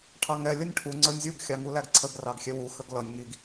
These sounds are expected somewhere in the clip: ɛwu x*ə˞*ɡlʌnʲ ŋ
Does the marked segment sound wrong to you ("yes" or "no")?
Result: yes